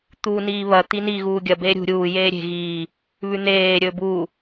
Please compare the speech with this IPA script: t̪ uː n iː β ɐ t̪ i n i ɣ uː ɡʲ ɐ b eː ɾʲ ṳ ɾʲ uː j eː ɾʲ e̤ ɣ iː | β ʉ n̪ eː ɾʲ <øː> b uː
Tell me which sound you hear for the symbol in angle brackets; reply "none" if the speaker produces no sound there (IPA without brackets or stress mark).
ɵː